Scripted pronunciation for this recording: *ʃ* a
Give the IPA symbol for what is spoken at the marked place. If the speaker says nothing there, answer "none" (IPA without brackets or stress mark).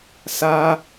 s